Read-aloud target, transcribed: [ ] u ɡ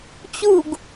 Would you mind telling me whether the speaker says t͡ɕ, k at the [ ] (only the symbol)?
t͡ɕ